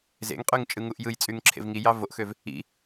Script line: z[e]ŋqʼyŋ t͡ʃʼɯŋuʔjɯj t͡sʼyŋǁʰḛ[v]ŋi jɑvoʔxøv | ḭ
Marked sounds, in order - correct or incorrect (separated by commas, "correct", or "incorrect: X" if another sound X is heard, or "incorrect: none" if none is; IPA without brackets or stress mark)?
incorrect: ḛ, correct